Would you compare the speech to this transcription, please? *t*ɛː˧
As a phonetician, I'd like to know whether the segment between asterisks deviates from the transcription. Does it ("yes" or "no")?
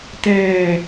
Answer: no